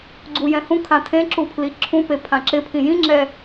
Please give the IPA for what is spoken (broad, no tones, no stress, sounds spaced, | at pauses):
ɡ͡ǀ u j ɛ̃ h ũ kʰ ã tʰ ẽ ǁ u pʰ l i ǁʰ ũ p e pʰ ã ǁ ɪ pʰ ĩ j ĩ ŋ͡ǁ ɛ